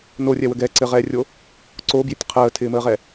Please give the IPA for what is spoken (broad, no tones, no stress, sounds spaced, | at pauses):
n o rʲ ɛ w ə ɡ ɛ ǀ ɘ ʁ ɛː rʲ o | ǀ o b j ɪ tʲ qʰ əː tʰ ɪː m əː ʁ ɛ